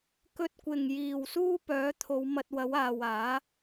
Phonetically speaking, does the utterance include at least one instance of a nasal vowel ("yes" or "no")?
no